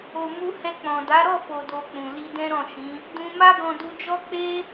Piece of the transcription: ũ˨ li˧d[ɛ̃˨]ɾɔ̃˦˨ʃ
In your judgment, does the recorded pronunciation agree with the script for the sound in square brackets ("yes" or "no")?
no